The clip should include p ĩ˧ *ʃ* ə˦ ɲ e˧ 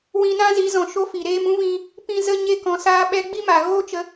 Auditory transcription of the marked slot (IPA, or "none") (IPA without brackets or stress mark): z